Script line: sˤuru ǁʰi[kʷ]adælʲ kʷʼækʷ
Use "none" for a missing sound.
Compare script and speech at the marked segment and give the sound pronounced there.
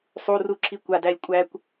kʷ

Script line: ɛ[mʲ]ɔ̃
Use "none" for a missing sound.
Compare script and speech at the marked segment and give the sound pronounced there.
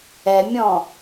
mʲ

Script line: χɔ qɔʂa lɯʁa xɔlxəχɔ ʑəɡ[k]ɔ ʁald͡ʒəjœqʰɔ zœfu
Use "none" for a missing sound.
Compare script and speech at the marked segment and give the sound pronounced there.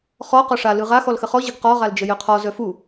q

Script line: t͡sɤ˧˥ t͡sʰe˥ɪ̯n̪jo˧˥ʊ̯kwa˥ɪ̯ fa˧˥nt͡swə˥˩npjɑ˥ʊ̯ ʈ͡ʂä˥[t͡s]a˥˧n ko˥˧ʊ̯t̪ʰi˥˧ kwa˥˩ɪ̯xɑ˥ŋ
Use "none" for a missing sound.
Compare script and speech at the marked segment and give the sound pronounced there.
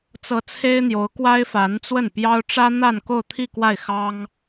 n̪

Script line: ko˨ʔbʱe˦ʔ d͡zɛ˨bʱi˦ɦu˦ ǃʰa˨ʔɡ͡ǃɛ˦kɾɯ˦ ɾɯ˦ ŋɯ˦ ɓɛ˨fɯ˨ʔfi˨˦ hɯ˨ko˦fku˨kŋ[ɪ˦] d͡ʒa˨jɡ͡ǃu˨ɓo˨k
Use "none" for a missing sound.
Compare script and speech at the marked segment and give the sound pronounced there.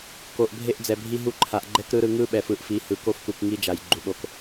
i˦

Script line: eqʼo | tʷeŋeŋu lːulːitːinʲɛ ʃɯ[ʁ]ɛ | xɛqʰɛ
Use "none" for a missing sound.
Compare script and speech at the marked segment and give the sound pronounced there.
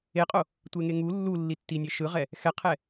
ʁ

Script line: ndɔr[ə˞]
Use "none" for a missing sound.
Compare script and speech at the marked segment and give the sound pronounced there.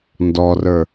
ə˞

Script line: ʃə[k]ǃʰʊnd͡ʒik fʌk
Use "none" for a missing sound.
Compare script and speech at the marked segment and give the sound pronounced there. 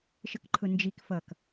k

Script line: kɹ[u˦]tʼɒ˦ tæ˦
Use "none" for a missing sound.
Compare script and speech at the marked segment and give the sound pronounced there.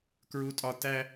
u˦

